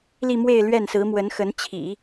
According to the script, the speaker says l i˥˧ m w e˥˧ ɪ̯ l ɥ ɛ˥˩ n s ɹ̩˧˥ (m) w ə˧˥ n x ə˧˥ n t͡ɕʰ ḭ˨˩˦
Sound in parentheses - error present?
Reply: no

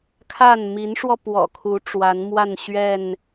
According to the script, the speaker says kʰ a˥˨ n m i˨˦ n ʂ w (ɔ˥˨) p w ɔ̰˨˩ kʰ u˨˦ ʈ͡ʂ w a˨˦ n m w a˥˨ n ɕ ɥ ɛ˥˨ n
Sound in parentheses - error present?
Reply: yes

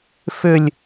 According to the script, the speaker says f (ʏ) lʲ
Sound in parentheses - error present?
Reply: no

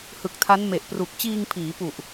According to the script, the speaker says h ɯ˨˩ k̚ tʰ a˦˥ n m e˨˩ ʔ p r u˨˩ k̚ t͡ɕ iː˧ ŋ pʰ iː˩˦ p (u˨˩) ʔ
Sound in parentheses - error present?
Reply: no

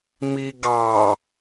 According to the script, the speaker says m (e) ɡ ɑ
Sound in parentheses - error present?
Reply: yes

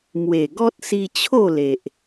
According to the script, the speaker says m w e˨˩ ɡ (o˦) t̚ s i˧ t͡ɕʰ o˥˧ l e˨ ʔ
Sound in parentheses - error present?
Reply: yes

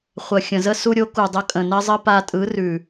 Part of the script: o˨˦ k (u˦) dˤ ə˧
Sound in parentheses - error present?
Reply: yes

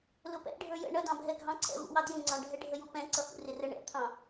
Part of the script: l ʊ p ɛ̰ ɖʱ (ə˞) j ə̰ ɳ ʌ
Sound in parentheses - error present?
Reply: no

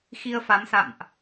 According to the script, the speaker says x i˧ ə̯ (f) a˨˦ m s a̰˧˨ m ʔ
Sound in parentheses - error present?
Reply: no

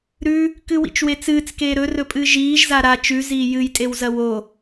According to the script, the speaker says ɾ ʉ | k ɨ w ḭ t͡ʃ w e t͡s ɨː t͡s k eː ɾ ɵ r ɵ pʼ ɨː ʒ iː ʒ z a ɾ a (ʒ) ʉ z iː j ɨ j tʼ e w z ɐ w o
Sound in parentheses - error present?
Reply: yes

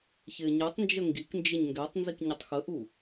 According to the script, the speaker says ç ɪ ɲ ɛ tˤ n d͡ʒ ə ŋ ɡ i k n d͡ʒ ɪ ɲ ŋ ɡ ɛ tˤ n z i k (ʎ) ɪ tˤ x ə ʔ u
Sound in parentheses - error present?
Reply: yes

